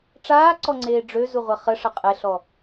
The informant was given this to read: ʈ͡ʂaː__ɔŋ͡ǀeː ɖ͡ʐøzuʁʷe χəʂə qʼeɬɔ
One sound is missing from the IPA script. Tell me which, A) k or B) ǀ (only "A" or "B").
B